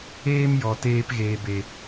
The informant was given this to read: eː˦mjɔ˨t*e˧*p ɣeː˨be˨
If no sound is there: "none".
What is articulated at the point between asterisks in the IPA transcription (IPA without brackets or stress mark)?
eː˧